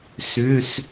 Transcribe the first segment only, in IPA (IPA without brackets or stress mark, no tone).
s